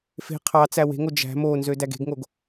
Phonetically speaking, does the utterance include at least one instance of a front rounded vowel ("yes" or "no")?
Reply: yes